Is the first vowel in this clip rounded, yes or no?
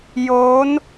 yes